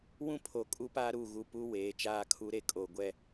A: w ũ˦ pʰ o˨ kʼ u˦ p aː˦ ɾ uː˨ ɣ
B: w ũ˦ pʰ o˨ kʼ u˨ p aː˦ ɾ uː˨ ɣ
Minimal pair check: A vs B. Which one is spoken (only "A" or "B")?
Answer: A